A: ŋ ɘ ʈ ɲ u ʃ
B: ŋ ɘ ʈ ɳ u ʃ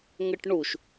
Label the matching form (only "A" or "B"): B